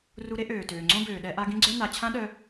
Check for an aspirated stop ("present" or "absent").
present